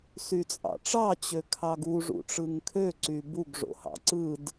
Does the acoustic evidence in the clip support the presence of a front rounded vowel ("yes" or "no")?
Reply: yes